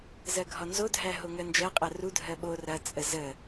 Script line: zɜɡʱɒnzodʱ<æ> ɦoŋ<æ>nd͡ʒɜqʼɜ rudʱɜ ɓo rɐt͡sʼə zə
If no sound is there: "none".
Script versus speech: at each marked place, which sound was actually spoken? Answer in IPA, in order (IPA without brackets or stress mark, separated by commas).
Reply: æ, ɜ